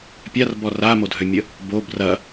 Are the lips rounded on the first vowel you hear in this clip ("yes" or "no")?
no